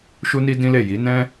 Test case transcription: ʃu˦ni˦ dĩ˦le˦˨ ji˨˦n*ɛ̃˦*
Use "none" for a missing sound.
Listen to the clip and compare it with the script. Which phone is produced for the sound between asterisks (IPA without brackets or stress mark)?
ɛ̃˦